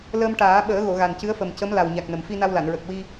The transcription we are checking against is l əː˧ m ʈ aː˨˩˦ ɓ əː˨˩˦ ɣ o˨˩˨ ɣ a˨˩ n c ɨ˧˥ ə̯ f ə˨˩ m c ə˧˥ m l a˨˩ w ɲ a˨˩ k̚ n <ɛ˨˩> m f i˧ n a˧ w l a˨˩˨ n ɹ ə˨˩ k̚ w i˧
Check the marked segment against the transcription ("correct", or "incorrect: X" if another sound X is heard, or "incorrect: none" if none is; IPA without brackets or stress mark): incorrect: ə˨˩